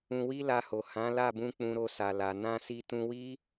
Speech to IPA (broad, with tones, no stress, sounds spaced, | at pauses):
ũ˧ w i˦ l a˧ h o˨ h ã˨˦ l a˦˨ b ũ˧ k͡p ũ˧ ɾ o˧ s a˨ l a˨ n ã˧ s i˧ t ũ˧ w i˦